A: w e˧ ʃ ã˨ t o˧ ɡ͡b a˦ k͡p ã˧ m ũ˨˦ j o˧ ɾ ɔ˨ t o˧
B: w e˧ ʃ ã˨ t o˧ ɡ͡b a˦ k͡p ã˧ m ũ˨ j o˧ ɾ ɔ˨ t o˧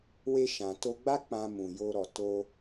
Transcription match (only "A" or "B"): B